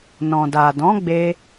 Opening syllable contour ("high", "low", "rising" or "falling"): low